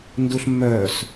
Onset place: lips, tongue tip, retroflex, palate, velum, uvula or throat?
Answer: tongue tip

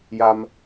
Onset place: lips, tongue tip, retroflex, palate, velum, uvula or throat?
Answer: palate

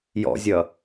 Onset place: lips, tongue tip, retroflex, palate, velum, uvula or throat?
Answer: palate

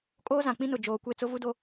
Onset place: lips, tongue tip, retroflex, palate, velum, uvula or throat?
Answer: velum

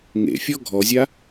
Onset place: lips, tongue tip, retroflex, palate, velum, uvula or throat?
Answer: velum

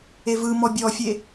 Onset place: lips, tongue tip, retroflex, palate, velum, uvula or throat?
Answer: lips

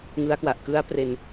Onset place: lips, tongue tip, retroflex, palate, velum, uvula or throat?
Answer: velum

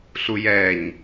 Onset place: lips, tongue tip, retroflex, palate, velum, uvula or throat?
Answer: tongue tip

